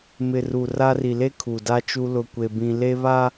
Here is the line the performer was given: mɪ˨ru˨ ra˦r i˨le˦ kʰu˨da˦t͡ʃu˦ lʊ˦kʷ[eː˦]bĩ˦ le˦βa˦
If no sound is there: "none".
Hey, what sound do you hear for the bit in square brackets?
e˦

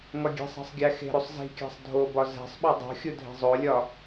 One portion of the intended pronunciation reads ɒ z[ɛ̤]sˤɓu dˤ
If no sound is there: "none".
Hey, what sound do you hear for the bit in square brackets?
æ̤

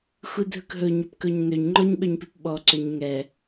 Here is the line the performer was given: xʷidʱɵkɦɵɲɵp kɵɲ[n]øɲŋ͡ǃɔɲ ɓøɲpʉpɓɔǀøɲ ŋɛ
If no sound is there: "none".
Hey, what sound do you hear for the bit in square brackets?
n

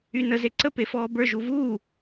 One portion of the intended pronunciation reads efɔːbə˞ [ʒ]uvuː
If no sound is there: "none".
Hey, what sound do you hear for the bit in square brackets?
ʒ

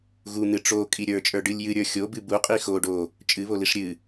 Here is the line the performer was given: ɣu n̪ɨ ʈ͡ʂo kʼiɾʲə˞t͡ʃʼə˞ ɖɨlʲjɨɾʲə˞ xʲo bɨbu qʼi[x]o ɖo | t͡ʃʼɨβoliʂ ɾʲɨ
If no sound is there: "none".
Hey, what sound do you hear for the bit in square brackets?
x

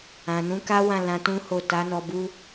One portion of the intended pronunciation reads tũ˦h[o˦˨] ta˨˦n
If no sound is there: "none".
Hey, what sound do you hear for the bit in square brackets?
o˦˨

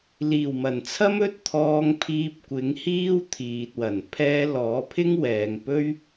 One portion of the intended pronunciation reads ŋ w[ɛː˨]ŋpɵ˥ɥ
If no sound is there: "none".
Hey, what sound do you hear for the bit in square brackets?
ɛː˨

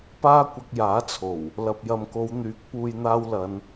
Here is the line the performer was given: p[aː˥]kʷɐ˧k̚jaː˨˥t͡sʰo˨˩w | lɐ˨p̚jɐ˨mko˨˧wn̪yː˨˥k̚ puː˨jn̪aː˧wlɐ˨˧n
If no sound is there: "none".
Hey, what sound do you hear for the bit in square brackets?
aː˥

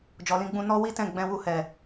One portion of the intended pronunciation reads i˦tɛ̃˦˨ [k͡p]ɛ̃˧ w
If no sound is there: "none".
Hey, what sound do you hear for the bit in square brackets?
ɡ͡b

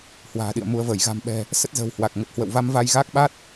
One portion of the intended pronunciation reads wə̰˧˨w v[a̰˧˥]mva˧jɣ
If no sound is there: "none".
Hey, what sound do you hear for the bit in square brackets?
a˧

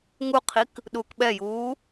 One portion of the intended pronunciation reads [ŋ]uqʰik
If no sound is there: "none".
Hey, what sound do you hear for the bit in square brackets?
ŋ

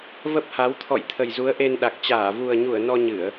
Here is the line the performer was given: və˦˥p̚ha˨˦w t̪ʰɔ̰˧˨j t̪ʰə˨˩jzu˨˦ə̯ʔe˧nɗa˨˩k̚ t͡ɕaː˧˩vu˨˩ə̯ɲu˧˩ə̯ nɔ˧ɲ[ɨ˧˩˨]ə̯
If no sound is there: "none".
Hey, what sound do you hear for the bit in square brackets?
ɨ˧˩˨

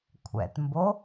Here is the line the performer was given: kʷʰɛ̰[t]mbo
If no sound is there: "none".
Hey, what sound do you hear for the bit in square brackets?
t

